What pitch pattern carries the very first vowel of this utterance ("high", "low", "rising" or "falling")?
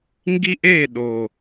high